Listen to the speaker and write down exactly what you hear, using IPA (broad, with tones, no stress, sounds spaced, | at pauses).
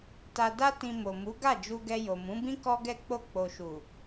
t a˧ d a˦ t ĩ˧ m o˨ m u˨˦ ɡ a˦˨ d͡ʒ u˧ ɡ ɛ˧ j o˨ m ũ˨˦ b ĩ˦ k ɔ˦ ɡ ɛ˦˨ k͡p o˧ k͡p o˨ ʃ u˨